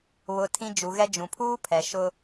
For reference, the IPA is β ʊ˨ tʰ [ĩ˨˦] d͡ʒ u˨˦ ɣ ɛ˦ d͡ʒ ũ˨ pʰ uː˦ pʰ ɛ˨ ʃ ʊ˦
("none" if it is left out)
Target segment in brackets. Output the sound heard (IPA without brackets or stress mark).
ĩ˦